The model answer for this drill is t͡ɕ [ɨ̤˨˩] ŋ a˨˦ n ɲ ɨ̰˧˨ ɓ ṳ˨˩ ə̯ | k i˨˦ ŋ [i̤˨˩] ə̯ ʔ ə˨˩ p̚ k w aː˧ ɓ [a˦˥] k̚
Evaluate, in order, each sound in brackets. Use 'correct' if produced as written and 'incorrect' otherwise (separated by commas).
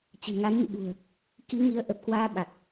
correct, incorrect, incorrect